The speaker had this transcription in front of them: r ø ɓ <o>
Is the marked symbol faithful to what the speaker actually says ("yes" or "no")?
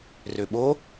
yes